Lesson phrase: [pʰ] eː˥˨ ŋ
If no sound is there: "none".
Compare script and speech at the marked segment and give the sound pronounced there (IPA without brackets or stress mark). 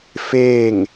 f